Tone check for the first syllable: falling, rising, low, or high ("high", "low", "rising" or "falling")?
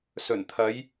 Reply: low